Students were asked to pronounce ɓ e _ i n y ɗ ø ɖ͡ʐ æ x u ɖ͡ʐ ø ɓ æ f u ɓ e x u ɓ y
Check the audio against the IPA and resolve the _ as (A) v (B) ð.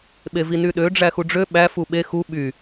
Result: A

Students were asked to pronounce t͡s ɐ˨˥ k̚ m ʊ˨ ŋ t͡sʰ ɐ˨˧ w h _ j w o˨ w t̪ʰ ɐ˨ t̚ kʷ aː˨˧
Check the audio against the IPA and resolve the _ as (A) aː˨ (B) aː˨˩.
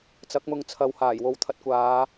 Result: B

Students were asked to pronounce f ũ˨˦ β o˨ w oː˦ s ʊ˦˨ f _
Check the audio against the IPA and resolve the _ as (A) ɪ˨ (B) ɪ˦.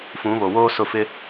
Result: B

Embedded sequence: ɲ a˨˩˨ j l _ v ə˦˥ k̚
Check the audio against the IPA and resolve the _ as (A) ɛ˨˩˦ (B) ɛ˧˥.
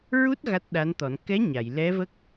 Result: B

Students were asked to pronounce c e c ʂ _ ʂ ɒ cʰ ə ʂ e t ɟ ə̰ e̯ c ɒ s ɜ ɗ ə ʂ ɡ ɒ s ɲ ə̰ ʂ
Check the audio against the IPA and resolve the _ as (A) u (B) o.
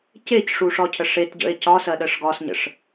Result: A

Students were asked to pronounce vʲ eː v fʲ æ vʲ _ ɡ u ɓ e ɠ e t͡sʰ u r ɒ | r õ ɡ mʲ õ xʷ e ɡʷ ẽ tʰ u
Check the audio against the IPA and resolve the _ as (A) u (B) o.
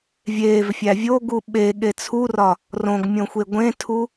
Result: B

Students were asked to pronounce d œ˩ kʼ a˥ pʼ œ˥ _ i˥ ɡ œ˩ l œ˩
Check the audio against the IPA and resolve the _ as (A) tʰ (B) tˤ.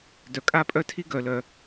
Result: A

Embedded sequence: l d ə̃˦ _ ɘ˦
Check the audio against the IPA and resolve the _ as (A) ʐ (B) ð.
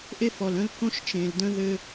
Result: B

